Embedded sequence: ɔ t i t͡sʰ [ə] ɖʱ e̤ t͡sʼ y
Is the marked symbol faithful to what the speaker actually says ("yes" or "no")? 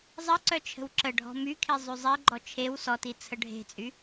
yes